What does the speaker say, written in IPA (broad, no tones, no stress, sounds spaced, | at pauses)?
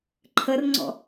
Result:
ǃʰ ə r ŋ͡ǀ ɔ̰